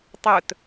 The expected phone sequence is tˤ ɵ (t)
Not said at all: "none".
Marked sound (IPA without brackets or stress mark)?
t